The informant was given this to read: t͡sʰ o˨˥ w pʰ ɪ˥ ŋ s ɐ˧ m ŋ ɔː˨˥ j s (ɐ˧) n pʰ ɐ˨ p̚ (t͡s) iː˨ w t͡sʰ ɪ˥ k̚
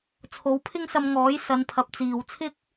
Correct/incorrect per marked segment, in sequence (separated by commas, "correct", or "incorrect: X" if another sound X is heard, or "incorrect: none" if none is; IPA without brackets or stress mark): incorrect: ɐ˨˧, correct